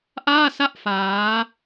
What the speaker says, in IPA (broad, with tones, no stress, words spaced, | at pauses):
ʔaː˥˩sa˥˩ʔ faː˦˥